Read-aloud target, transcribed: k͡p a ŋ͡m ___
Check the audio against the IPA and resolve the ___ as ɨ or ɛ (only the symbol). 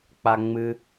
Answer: ɨ